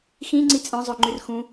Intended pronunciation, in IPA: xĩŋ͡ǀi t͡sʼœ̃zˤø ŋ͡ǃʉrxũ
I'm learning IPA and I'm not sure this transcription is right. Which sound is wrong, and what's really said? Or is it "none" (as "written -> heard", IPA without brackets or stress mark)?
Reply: none